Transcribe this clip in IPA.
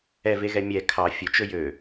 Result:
ɛveɣɛ mʲɛ kʰɑ fʲɵt͡ʃɵ jø

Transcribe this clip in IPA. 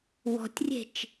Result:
wɔ̤tʲrʲe̤t͡ʃ

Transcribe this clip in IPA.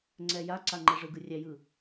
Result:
ŋ͡ǀɛjaǀa ŋ͡ǃɛʐɯɡɯ rʲæjɯ

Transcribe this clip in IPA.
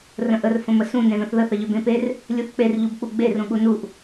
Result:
rə̃ʔər fə̃məsũ nẽðə̃θðə θəʎʏbẽper | lʲuθk͡per ʎubk͡puɡ͡be rũɠunuʔ

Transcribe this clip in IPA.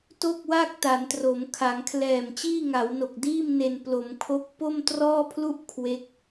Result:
to˥˩k̚wa˥˩k̚ ta˩˦ntro˩˦m kʰa˩˦ŋkʰlɛː˨˩m t͡ɕiː˥˩ŋa˩˦wno˨˩k̚diː˥˩m ne˧n plo˩˦mkʰo˦˥k̚ po˥˩mtrɔː˥˩pʰlu˥˩ʔ kʰwe˦˥k̚

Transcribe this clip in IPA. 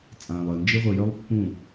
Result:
t͡sʼãː˨lˠəː˨nd͡ʒɨ˦ ʁʷɨ˨jœ˦lˠ pːũ˦˨

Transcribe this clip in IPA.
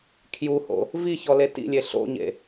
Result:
kʰjuho̰ | viçɔle tḭlʲe ɬo̰ɲḛ

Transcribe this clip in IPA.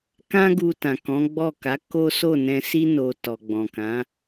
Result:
kã˦ɡu˧ tã˨kɔ̃˨˦ɡ͡bɔ˦˨ka˨˦ ko˦ so˦˨nɛ̃˧si˦ no˧ tɔ˨ɡ͡bɔ̃˨ kã˨˦

